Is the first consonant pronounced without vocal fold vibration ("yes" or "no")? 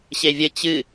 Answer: yes